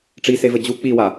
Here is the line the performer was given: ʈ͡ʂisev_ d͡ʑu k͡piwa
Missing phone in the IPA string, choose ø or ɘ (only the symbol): ɘ